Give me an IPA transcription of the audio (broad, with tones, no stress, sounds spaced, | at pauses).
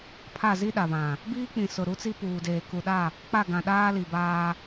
pʰ a˦˨ z i˦ ɗ a˨ β ã˨ | b iː˦ k͡p ĩ˨ s ʊ˨ ɾ u˦ t͡s i˦ p uː˨ d eː˨ k u˨ ɗ a˦˨ | k͡p a˦˨ ɡ ã˨ ɗ aː˦ l i˨ b aː˦